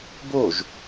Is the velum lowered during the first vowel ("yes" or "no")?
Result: no